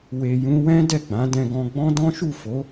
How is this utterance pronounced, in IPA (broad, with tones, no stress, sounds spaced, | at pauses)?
w e˨ j ũ˧ w ɛ̃˦ d ɛ˦˨ ɡ͡b ã˨˦ d ɛ̃˧ ɡ ɔ̃˧ ɡ͡b ɔ̃˦ d ɔ̃˦ ʃ u˦˨ f o˨˦